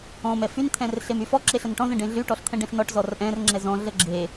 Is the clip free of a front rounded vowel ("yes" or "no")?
no